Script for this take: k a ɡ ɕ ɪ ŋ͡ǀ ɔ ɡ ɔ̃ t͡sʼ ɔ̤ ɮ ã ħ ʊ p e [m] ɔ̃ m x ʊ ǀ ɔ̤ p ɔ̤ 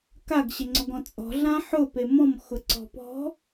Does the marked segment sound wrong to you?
no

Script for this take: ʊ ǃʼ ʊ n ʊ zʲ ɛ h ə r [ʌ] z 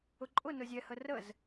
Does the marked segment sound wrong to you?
yes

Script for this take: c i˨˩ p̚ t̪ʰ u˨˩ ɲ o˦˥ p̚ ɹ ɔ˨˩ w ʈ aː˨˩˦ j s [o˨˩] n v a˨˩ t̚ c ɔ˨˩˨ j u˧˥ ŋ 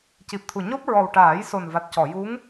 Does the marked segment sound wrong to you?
no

